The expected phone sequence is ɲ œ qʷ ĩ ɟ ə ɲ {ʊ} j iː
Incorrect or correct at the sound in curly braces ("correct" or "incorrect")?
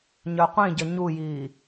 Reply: incorrect